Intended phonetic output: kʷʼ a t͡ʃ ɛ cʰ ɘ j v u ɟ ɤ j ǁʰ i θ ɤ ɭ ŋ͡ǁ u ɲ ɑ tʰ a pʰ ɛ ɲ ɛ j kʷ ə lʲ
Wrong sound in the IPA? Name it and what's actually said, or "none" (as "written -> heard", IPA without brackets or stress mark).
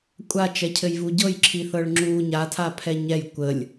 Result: ɑ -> a